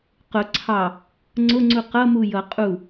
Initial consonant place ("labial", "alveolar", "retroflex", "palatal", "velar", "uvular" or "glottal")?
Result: uvular